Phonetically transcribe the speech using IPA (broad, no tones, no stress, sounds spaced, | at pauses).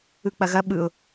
ɯ k͡p ɐ ɣ ɐ ɓ ɯ ʊ̯